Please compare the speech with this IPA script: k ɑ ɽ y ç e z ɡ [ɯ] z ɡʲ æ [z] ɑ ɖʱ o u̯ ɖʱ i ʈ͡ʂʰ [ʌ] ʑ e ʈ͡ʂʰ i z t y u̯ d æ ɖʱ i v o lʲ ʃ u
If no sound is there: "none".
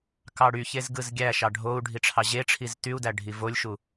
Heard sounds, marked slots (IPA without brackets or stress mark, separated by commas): ɯ, ʃ, ɑ